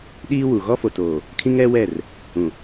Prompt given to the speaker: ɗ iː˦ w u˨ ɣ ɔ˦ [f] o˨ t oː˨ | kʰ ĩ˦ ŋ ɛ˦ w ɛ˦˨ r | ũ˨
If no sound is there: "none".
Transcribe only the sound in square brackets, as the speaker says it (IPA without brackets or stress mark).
f